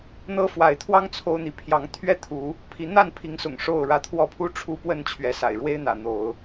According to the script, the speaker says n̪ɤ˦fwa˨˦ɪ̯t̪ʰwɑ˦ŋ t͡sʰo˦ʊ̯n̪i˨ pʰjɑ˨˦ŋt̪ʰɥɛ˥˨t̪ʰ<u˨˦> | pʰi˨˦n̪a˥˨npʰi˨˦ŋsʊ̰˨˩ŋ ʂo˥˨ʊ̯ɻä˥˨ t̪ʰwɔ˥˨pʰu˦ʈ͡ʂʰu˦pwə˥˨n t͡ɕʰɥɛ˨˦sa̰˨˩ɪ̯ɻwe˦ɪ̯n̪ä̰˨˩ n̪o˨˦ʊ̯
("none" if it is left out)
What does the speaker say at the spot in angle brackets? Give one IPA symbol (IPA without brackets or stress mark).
u˨˦